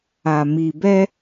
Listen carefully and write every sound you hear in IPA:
a˨ m i˨ b ɛ˦

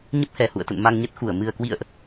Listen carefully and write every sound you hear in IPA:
ɲ ə˦˥ p̚ h ɛ˨˩ h ṵ˧˨ ə̯ t̪ ə̰˧˨ n m a˧ ŋ ɲ ə˦˥ t̚ x u˧˩ ə̯ m ɨ˨˩ ə̯ k w ḭ˧˨ ə̯ ʔ

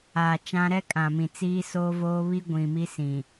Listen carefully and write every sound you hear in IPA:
aː˨ t͡ʃ ã˦ ɾ ɛ˦ kʼ ã˨ m ĩ˨ t͡s iː˦ s oː˦ v oː˦ β i˦ ɡʷ ĩ˨ m i˦ s ĩ˨

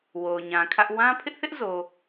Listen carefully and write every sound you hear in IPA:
w o˨ ʊ̯ ɲ ã˨ kʰ ä˦ ʔ w ã˦ pʰ ɪ˦ ʔ θ ɪ˦ ʔ z o˨

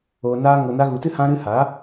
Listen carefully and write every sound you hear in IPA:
oː˨ n aː˧ ŋ o˨ n a˧ ɣ u˨ t ɨ˦ h ã˧ ɾ ɨ˧ h a˨˦

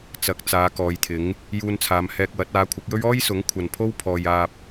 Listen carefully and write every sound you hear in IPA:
t͡s ɐ˨˥ k̚ t͡s aː˨˧ k ɔː˨˧ j t̪ʰ ɪ˨˥ ŋ | j uː˧ n t͡sʰ aː˨˧ m h ɛː˧ k̚ w ɐ˨˥ t̚ aː˨˥ kʷʰ ɐ˨˥ k̚ j ɵ˥ ɥ ɔː˥ j s ʊ˨˥ ŋ kʷʰ ɐ˨ n pʰ o˥ w pʰ ɔː˨ j aː˧ p̚

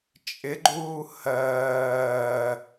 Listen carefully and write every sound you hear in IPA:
t͡ʃʼ ɪ ɡ͡ǃ uː h ɜː

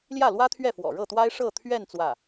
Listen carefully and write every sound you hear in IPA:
l j ä˥˩ l w ä˥ t̪ʰ ɥ ɛ˥˩ f w ɔ̰˨˩ ɻ ɤ˥˩ t̪ w a˥ ɪ̯ ʂ ɤ˥˧ t̪ʰ ɥ ɛ˥˧ n t͡s w ä˥˩

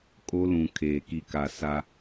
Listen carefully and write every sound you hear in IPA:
kʼ o˦ l ũ˨ kʰ eː˨ k i˨ k a˨ s a˦

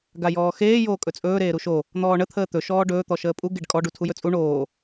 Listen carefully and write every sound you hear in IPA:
ɡ a j ɔː x eː j oː kʼ ɵ t͡sʼ ɵː ɾ eː ɾ u ʃ o | n̪ ɔː ɳ ə t̪ʰ əː t̪ ɵ ʃ ɔː ɖ ɵː t̪ ɔ ʃ əː pʼ u ɡ e ɖ kʼ ɔ ɖ u tʰ u j ɵ t͡sʼ u ɳ oː

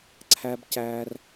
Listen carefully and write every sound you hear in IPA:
ǀʰ æ˦ b c æː˦ r

